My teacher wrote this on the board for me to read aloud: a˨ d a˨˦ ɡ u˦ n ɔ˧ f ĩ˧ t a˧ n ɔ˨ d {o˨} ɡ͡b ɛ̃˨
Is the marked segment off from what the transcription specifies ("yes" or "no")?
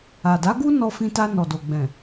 no